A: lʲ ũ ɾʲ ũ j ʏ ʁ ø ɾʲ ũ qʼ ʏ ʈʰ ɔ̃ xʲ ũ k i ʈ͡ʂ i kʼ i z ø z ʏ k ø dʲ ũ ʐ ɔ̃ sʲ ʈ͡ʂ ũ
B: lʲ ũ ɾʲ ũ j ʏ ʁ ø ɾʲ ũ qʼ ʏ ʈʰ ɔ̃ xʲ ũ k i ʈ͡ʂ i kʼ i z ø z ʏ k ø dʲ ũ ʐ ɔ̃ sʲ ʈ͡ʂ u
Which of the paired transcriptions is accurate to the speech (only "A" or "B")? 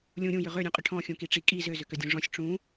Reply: A